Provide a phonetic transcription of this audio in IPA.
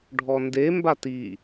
ɖʱ ɔ n d e m b a t i

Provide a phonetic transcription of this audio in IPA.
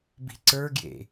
b i̤ ǀ ə˞ ɡ j ḛ

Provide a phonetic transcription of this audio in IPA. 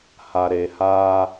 h a˨ ɾ e˨ h aː˦

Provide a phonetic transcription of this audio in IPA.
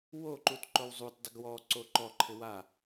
w o ǃ u t ǃ o w zˤ u t dˤ ɪ ɡ w ɔ ǀ o ǃ ɔ ǃʰ ɪ w a

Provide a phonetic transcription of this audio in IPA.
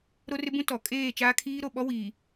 ɾ o˦ r ɪ˦ b ũ˦ t ɔ˨ kʼ eː˦˨ t͡ʃ aː˦ kʰ iː˦ ɾ o˨ ɓ ɔ˦ w iː˨

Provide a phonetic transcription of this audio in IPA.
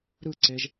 ɾ ɯ ǀ e ʒ

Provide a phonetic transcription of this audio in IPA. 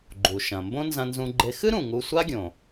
ɡ͡ǃ u˩ ʃ ɐ̃˩ m b õ˥ n z ɐ̃˧ n z ũ˧ ɡ͡ǃ e˧ x ɨ˥ ɾ ũ˩ ŋ u˧ sʷ a˥ ɡʲ õ˩

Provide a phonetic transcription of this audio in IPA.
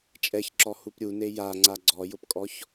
t͡ʃʼ ɛ ç ǁ ɔ h u p ɾʲ u n e j a ŋ͡ǀ a ɡ͡ǀ ɔ j ʊ p kʼ ɔ ç

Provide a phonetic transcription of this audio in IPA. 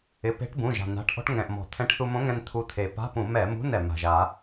ɪ˩˧˩ p e̤˧˥ ʈ b ũ˩˧˩ ʒ a̤˩ n a̤˩˧˩ ʈ ʔ ɔ̤˧ ʈ ŋ ɛ̃˩ ʔ m ɔ̤˩ t̪ʰ ɛ̃˧˥ ʈ θ u˧ m õ˧˥ ŋ ɛ̃˧ n t̪ʰ u˧ t̪ʰ e˩ p a̤˧˥˧ p ũ˧˩˧ m ɛ˧˩˧ m ṳ˧˥˧ n ɛ˩ m a̤˩ ʒ a˧˩˧

